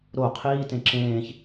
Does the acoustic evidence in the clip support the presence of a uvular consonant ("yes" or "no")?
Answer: yes